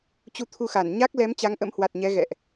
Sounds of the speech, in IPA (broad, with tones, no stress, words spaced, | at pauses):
t͡ɕu˧t̪ʰu˧xa˧˩n ɲa˦˥k̚lɛ˨˦m t͡ɕa˨˦ŋʔə̰˧˥mhwa˨˩t̚ɲɛ˨˦ ɣɛ̰˧˨ʔ